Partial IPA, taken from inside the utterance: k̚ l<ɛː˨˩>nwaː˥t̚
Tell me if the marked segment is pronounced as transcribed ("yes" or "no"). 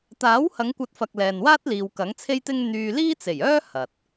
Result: no